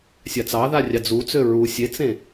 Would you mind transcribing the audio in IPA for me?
sʲ a t͡s ɑ ð a rʲ ɑ d͡z u t͡s ø ɹ u sʲ e t͡s ẽ

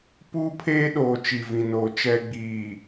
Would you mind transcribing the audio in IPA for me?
p uː˦ pʰ eː˦ ɗ oː˨ t͡ʃ i˨ v ĩ˨ n oː˨ t͡ʃ ɛ˨ ɡ͡b iː˨

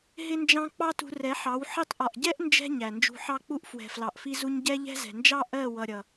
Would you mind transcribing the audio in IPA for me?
ɦ ɪ˦ n d͡ʒ ɑ̃˦ k͡p ɑ˦ t ṳ˧ r ɛ˨˦ ħ ɑ˨˦ w ħ i˧ tˤ ʔ ɒ˨ ʔ ɟ ɛ˦ ʔ n d͡ʒ ɛ̤˧ ɲ æ˨ n d͡ʒ ṳ˧ ħ ɑ˦ k͡p u˦ ʔ f w ɛ̤˨ f l ɑ˨ ʔ f i˧ z u˧ ɲ ɟ ɛ˦ ʎ ɛ̤˦ z ɛ̤˨ n d͡ʒ ɑ˦ ʔ ɜ˦˨ w ʌ˨ ɾʲ ʌ˨

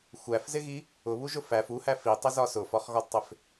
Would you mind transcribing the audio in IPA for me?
xʷ æ f z ɪ ɣ i | ʊ β u ʒ ʊ f æ f u h æ f i tˤ ɪ z ɒ s ʊ f ɒ χ ɣ ɒ d tˤ ɪ f

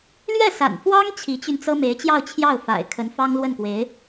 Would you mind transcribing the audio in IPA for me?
l ɥ ɛ˥˩ s a̰˨˩ n f w ɑ˥ ŋ t͡ɕʰ i˧˥ t͡ɕ y˧ n t͡s ɤ˥ m e˧˥ ɪ̯ t͡ɕ j ɑ˥˧ ʊ̯ t͡ɕʰ j ɑ˥˩ ʊ̯ f a̰˨˩ ɪ̯ kʰ ə˧˥ n f ɑ˥ ŋ l w ə˥˩ n k w e˧˥ ɪ̯

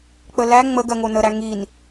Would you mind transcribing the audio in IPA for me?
k͡p ə l æ ŋ͡m ə ɡ ɜ ŋ o n ə ɾ æ ŋ i n

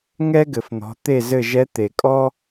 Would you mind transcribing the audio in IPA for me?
ŋ ɛ˥ ɡ ɘ˩ f n̪ ɔ̤˩˧ t̪ e˦˨ z ɘ˦˨ ʒ ɛ˧˥ t̪ e˩ kʼ ɔ˥

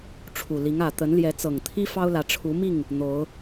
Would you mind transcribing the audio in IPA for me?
ʈ͡ʂʰ u˨˩ l i˨˦ ŋ ä˨˩ t̪ ə˨˦ n l j ɛ˨˦ t͡s ɤ˨˩ ŋ t̪ʰ i˦ f ɑ˦ ʊ̯ l ä˨˦ ʈ͡ʂʰ u˨˦ m i˥˨ ŋ | n̪ o˨˦ ʊ̯

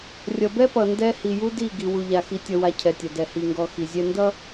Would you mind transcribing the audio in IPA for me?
rʲ ʌ˨ b ɛ˦ p ʌ˨ n d ɛ˦ h i˨ j u˦ d i˦˨ ɡ i˨ w u˨ ʎ a˨ x i˨ tʲ ʌ˨ w a˨ cʰ ɛ˨ tʲ ʌ˨ d ɛ˨ h i˨ ŋ ɡ ɔ˨ x i˨ zʲ ɛ˦ n d ʌ˦

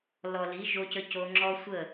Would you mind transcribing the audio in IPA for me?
l ɔ˨ l i˨˦ ʒ o˧ c ə˧ c o˧ ŋ͡ǁ ɔ˦ sʷ ə˦˨

